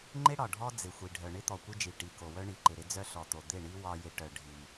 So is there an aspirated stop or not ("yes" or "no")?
no